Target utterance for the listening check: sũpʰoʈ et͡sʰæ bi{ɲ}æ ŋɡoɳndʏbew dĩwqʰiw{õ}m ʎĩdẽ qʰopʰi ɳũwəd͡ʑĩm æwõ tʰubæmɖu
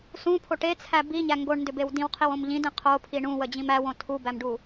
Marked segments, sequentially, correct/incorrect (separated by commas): correct, correct